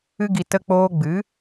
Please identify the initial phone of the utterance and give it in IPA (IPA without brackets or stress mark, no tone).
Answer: ɨ